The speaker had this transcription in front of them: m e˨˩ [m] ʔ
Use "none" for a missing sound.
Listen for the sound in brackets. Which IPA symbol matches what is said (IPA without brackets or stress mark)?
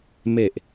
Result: none